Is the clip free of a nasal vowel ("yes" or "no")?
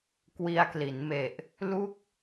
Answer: yes